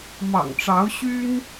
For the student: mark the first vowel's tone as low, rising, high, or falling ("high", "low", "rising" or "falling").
low